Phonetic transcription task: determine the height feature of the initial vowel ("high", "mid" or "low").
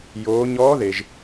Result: mid